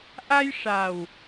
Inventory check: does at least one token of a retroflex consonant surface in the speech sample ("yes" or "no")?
yes